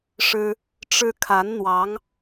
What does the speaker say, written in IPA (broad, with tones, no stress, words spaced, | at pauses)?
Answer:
ʂɻ̩˥ | ʈ͡ʂɻ̩˥ kʰa˧˥n n̪wɑ˧˥ŋ